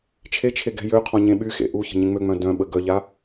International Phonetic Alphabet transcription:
t͡ʃʰ e t͡ʃʰ e ɡ ɛ̤ j ø qʰ ɔ̃ ɲ ẽ ɓ y x ḛ ʔ u ç ə̤ ɲ ẽ ŋ͡m ø ŋ͡m œ̃ d œ̃ ɓ ə ɡ œ ʎ a

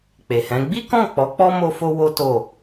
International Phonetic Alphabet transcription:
k͡p e˨ h ɛ̃˨˦ ɡ͡b i˦ k ɔ̃˦˨ k͡p ɔ˨˦ k͡p ɔ˦ m o˦ f o˦ w o˦ t o˦˨

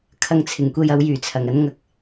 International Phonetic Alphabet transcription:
kʰ ɐ˧ ŋ t͡sʰ ɪ˨˩ ŋ kʷ e˧ j ɐ˨˧ w j yː˨˩ t͡sʰ ɐ˨˩ ŋ ɐ˥ n ŋ ɐ˧ k̚

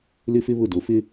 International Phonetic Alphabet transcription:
l ɪ˦ f ɪ˦ β ʊ˦˨ d o˨ f ɪ˦

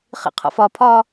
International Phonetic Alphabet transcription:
χ ḭ qʰ ɔ̰ f ɒ pʰ ɒ

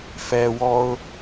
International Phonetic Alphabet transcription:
f ɛ w ɔ ʊ̯

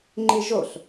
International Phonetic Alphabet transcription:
ŋ͡ǃ i ʒ o ɬ

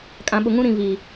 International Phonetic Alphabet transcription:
kʼ ã˨ ɓ ʊ˨ ŋ ũ˦ ɾ ĩ˨ v i˨

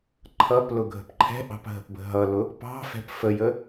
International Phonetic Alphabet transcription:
ǃʰ ʌ p l ʊ ɡʱ ə̤ p ǃʰ ɛ̤ ʔ ɑ̤ p ɦ ə̤ p b ə̤ ɦ ʌ l ʊ | p ɑ̤ f ɛ̤ p f ə j ə

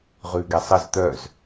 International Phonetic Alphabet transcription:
ʁ ʉ ɡ ɛ sˤ ə z t̪ œ z

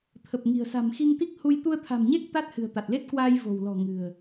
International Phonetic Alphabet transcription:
t̪ʰ ə˨˩ p̚ ŋ i̤˨˩ ə̯ s a̤˨˩ m x i˧ ŋ t̪ i˦˥ k̚ h u˧ j t̪ u˧ ə̯ t̪ʰ a̤˨˩ m ɲ e˦˥ k̚ t̪ a˦˥ t̚ h ɨ̤˨˩ ə̯ t̪ a˨˩ t̚ l e˦˥ t̚ k w aː˧ j v o̤˨˩ w l ɔ̤˨˩ ŋ ɨ̤˨˩ ə̯

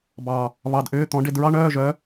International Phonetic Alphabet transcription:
b ɑ˧˩ | β ɑ˧ d ʔ ʏː˧˥˧ t̪ ɔ̃˧˥ ɖ e˧ d ɹ ɑ˥ ɳ œː˧˥˧ ʒ œ˧˥

